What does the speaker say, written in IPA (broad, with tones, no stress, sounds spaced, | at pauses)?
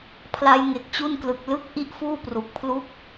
pʰ l a˦˥ j ŋ e˨˩ k̚ t͡ɕ u˥˩ n k l ɯ˨˩ k̚ l ɯ˦˥ k̚ ʔ i˥˩ ʔ f uː˥˩ p r u˨˩ k̚ pʰ l u˥˩ k̚